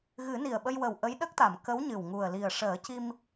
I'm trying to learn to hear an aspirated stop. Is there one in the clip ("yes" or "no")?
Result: no